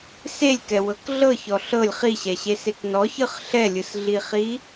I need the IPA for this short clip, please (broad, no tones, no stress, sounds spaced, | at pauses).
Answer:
s e lʲ k ɛ w ɤ k ɮ ɤ ç ɔ ɬ ɤ lʲ χ i ɕ ɛ ɕ e s e k n ɔ ç ɯ χ ɬ ɛ lʲ ɯ s ɮ i χ i